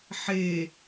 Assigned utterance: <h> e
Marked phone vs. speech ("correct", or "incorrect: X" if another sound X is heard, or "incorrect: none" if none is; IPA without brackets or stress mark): incorrect: ħ